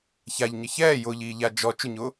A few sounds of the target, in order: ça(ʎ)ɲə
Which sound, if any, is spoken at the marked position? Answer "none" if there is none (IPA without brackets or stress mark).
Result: ʎ